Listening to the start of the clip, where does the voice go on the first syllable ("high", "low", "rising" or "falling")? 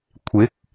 rising